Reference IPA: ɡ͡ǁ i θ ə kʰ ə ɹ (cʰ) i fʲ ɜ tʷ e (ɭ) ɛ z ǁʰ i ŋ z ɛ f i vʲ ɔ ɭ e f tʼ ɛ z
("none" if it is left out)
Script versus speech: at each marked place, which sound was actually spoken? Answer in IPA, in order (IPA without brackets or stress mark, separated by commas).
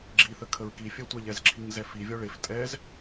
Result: k, ʎ